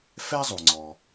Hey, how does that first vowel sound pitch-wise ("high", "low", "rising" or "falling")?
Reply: high